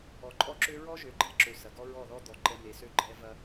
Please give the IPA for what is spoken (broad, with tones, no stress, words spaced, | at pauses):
ɔ˨ǃʼɔ˦ǁø˦ ɹɔ˦ʒø˨ɡ͡ǃɛ˦˨ǁø˨ sɐ˨ɡɔ˦ɹɔ˦˨ðɔ˦ d̪ɔ˨ ǃɛ˦ me˨sø˦ ɡ͡ǃɛ˦ vɐ˦